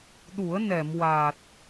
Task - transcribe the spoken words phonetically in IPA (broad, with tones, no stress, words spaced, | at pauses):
ɗu˨˩˦ə̯ nɛ˨˩˨mwa˨˩t̚